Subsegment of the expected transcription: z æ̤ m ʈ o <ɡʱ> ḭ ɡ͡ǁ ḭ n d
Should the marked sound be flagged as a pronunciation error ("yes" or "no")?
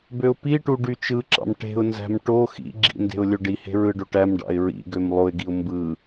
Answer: yes